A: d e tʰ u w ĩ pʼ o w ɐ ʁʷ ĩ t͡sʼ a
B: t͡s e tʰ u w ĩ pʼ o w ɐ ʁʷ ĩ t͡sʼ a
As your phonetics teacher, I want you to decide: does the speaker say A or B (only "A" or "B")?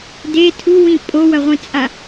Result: A